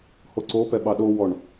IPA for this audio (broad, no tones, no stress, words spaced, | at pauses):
hoǀopɛ ɓɑɗowɔɳ